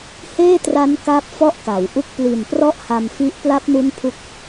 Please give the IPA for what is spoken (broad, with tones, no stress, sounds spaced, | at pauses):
h eː˥˩ t r a˦˥ n k aː˥˩ p̚ f ɔ˥˩ ʔ k a˩˦ w ʔ u˥˩ k̚ p l i˨˩ n p r ɔ˦˥ ʔ h a˧ m f i˦˥ ʔ p l a˦˥ p̚ n u˦˥ n pʰ u˦˥ k̚